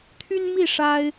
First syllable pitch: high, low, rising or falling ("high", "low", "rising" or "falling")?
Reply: high